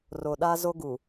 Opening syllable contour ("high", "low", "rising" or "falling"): low